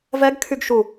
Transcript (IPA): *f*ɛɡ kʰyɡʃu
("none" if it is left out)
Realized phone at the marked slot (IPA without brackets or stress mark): v